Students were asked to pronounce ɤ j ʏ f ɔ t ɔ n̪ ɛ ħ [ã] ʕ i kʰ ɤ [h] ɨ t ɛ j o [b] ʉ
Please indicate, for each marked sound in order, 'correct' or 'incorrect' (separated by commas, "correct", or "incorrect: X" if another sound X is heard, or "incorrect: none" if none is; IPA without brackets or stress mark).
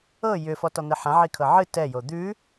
correct, incorrect: ʕ, incorrect: d̪